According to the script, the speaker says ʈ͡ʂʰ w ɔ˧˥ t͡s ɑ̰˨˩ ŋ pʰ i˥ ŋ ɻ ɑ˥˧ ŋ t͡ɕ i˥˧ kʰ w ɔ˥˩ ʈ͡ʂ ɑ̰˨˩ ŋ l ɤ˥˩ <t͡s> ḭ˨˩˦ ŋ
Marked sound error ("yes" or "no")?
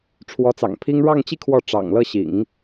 yes